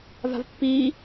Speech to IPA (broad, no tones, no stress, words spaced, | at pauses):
va̤vpːiː